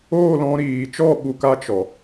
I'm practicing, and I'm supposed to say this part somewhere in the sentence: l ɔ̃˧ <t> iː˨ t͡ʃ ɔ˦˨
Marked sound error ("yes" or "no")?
yes